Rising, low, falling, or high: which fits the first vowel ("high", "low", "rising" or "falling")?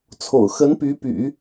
low